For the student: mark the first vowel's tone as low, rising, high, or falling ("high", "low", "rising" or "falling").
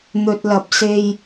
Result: low